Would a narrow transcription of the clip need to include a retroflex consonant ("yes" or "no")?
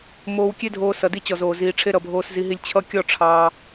yes